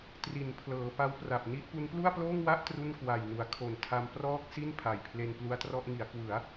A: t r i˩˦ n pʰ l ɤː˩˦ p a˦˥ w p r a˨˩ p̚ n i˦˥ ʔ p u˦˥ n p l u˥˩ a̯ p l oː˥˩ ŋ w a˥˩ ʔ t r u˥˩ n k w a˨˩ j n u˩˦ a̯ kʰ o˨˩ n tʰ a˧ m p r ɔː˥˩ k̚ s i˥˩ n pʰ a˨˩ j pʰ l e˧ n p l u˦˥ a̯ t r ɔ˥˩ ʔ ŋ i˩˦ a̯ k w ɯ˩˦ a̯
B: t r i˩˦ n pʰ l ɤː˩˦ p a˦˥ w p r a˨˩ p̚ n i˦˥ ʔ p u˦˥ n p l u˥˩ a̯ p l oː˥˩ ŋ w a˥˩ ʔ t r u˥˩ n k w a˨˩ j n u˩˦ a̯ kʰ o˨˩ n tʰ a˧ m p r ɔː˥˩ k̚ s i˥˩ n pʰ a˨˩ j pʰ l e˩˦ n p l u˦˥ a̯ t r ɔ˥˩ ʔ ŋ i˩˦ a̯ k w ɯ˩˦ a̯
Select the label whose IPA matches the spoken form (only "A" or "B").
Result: A